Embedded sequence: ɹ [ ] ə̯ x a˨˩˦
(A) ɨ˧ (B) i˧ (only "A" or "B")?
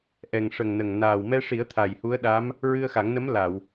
A